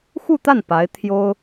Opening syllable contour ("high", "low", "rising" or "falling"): falling